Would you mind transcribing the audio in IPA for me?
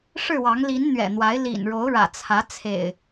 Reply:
ʂɻ̩˥˨wɑ˨˦ŋ li˨˦n n̪ɥɛ̰˨˩n̪wa˨˦ɪ̯ lḭ˨˩nɻo˨˦ʊ̯ɻä̰˨˩ t͡sʰä˨˦t͡sʰḛ˨˩ɪ̯

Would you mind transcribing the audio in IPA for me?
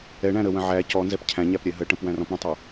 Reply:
ɛɳæ̃ ɾəwə̃ ʕæ cɔnzɛp cʰæ̃ɲæp ɾʲɛɦəʈə̃p wæ̃rɔ̃pɽə̃tˤæ

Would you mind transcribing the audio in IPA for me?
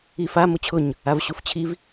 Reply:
ifa mʊt͡ɕʰʊɲ | avɕuft͡ɕʰiv

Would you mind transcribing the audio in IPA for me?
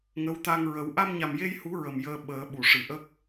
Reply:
ŋə˧˥w t̪a˧ŋɹə˨˩˦w ʔa˧mɲa˨˩mje˧jhu˨˩˦ ɹə˨˩mjəː˧ ɓəː˨˩˦ɓu˨˩˨ʂɨ˨˩ʔə˦˥k̚

